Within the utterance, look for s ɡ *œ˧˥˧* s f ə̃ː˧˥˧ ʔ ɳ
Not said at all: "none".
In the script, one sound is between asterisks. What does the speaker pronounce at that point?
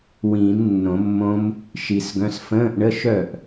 œ̃˧˥˧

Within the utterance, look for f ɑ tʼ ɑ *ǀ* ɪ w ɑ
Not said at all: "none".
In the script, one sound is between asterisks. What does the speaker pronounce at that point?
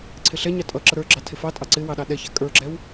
ǀ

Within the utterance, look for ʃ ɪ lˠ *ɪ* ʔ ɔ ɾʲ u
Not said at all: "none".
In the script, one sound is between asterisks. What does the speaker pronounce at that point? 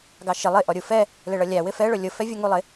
ɪ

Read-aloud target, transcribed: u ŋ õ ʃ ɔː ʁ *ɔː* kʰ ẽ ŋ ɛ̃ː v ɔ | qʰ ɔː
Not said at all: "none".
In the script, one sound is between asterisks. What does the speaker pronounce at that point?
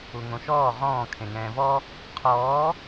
ɔ̃ː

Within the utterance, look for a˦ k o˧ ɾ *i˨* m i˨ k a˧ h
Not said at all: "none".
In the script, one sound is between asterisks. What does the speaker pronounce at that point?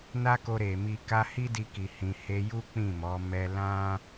e˨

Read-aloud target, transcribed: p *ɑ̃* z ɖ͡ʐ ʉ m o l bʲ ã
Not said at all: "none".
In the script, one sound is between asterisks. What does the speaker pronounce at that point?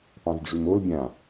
ɑ̃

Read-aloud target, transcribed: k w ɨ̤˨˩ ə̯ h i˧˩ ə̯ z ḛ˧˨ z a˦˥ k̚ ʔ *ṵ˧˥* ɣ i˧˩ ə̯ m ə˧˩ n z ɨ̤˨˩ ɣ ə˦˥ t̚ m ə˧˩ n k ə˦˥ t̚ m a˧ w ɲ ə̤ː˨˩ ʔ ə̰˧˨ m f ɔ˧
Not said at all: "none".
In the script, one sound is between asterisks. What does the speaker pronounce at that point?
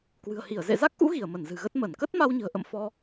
ṵ˧˥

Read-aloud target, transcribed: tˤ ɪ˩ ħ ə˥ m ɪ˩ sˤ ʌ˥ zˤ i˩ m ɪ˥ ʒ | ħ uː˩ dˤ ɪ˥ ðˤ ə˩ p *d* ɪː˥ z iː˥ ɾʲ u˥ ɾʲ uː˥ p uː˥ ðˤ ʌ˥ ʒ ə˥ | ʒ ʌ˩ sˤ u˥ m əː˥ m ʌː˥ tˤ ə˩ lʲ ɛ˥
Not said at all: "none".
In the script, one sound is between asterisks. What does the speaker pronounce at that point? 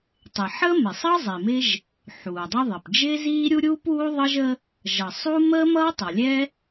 d͡ʒ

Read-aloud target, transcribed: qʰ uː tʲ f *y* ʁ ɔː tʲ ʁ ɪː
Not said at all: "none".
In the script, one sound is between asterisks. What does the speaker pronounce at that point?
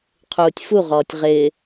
u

